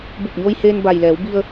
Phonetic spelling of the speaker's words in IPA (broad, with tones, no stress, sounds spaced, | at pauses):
b u˧˩ p̚ ɲ oː˧ j h eː˧ n b a˩ j l ɛː˩˧ w b i˧ ə̯